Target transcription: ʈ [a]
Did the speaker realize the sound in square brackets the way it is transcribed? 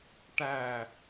no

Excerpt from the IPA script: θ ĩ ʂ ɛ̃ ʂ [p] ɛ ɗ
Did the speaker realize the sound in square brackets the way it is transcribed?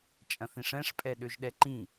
no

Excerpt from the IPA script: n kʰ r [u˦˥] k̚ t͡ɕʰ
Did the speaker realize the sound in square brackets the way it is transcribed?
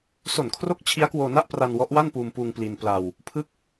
no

